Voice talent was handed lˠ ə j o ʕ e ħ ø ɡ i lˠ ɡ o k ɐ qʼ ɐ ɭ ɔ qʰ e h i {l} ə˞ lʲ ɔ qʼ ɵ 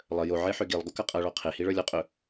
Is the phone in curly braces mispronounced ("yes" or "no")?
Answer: yes